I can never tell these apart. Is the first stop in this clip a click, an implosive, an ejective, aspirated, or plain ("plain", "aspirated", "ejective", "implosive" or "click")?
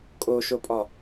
ejective